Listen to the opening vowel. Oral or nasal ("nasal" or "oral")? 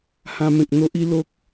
nasal